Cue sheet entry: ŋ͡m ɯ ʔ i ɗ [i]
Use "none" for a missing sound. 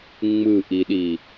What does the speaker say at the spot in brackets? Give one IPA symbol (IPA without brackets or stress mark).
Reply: i